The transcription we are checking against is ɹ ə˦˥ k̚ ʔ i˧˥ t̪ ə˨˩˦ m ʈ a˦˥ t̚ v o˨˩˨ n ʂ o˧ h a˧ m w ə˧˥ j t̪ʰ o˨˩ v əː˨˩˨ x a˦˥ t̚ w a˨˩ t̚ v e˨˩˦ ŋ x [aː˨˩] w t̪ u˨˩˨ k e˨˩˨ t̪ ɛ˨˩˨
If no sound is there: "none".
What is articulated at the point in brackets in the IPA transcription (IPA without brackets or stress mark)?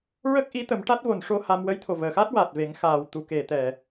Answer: aː˨˩